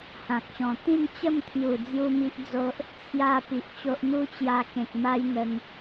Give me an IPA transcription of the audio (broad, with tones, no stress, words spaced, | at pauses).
hã˨k̚ɕɔ̃˨˩ t̪ĩ˥˧nt͡ɕə˥˧mt̪ʰju˨˩ d͡zju˦mi˦ʔd͡zo˦ʔ | t͡sʰja˥˧pi˨ʔt͡ɕo˦ʔ n̪u˦t͡ɕja˧kẽ˨k̚ma˦j n̪ə˧ŋ